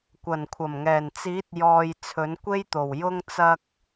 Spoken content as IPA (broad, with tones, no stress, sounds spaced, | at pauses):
kʷ ɐ˨˩ n kʷʰ ɐ˨˩ m ŋ ɛː˨˩ n t͡s iː˨˥ t̚ j ɔː˨ j t͡sʰ ɵ˨˥ n kʷ e˥ j t̪ o˨˩ w j ʊ˧ ŋ t͡s ɐ˧ k̚